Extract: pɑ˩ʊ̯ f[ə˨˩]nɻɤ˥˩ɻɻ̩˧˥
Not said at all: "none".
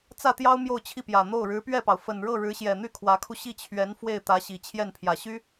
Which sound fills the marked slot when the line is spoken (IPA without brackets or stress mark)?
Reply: ə˨˩